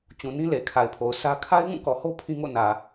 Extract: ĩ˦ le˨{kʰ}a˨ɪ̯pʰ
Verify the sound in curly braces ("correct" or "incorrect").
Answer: correct